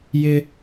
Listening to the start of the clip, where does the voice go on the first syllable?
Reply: high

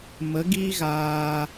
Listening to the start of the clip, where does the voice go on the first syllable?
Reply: rising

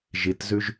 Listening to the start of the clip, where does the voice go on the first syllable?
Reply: low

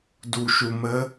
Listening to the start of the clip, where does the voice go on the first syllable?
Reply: low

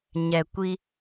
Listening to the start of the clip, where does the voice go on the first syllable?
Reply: low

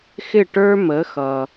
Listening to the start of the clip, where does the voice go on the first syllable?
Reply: falling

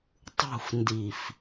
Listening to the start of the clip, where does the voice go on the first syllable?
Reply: falling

